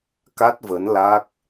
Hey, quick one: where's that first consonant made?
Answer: velum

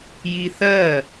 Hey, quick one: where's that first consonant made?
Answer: palate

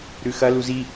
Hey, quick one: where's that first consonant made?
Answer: tongue tip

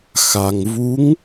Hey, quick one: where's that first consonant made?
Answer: velum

